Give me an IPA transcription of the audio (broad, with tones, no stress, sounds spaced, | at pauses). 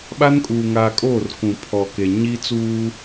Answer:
ɓ a˦ n kʼ uː˨ ŋ aː˨ kʼ oː˦˨ r k ũ˨ pʰ ɔ˨ k e˨ ɲ i˦ t͡s uː˦